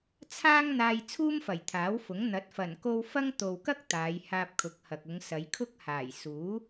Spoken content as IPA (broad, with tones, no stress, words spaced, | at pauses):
t͡sʰaː˥ŋn̪aː˧j t͡sʰuː˥mfɐ˨˩jt̪ʰaː˨˥wfʊ˨˥ŋ n̪ɐ˨˥t̚fɐ˨˩nko˧w fɐ˥ŋ t̪o˨wkɐ˥k̚ t̪aː˨˧jhaː˧p̚kʰʊ˨˥k̚hɐ˨k̚ ʊ˨˧ŋsɐ˨˧jkʰʊ˥k̚ haː˨˩jsuː˨˥